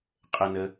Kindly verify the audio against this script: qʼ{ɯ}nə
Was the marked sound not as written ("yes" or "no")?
yes